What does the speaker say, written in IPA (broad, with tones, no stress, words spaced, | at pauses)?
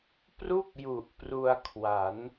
pru˥˩k̚ju˨˩ʔ pru˧a̯kʰwa˩˦n